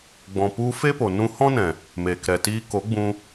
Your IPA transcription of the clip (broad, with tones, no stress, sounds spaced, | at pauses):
ɡ͡b ɔ̃˨ p u˧ f e˦ p o˨ n ũ˧ h ɔ̃˦ n ɛ̃˨ | m eː˨ k ɾ ɛ˨ t iː˧ k o˨˦ ɡ͡b ũ˧